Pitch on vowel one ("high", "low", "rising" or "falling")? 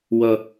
high